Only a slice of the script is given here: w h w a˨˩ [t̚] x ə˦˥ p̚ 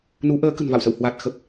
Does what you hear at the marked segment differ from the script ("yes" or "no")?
no